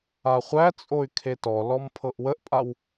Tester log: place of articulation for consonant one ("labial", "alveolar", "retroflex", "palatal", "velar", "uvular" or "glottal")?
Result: uvular